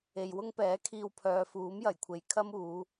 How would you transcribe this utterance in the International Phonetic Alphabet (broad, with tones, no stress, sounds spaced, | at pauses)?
e˨ j w ʊ˥ ŋ p ɛː˨˥ kʰ iː˧ w pʰ œː˨ f uː˨˥ m j ɐ˨˩ j kʷʰ e˨ j kʰ ɐ˥ m uː˨˧